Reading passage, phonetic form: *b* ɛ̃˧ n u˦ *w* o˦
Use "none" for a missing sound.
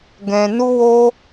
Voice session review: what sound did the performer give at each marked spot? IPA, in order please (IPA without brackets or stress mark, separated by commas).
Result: ɡ, w